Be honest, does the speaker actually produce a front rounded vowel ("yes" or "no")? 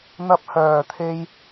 yes